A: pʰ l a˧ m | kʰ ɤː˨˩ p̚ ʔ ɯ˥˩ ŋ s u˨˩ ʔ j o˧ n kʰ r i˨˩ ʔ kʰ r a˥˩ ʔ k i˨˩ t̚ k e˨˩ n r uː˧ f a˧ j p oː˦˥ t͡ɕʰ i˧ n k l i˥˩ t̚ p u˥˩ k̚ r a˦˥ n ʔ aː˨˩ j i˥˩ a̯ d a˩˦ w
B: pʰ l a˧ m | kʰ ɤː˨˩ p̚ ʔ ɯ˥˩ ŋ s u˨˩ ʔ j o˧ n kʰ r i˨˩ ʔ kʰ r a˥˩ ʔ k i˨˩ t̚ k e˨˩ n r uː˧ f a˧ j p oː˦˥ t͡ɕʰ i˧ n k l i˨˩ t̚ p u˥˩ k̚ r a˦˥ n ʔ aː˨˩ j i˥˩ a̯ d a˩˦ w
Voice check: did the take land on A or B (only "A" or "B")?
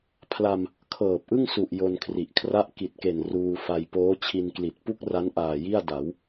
B